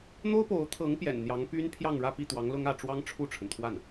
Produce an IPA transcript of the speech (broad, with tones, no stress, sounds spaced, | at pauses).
n̪ o˥ ʊ̯ p o˧˥ ʊ̯ t̪ʰ ɤ˧˥ ŋ p j ɛ̰˨˩ n n̪ j ɑ˧˥ ŋ p y˥ n pʰ j ɑ˥˧ ŋ ɻ ä˥˧ p i˥˩ t̪ w ɑ˧˥ ŋ l ʊ˥ ŋ ä˥˩ ʈ͡ʂ w ɑ˥ ŋ ʈ͡ʂʰ u˥˩ ʈ͡ʂʰ ə˩ n t̪ʰ w a˥˩ n